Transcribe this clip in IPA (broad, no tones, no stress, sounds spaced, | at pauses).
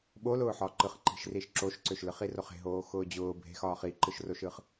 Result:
ɓ o l ʊː ħ ɒ ǃ ɯ χ ǃ i̤ ʃ r i ʃ ǁ o ʃ ǀ ø ʃ l ɯ χ i r o χ e̤ ɦ oː x ʊː d͡ʑ ʊː bʱ e̤ x ɒː χ i ǃ ɯ ʃ r o ʃ ɯ χ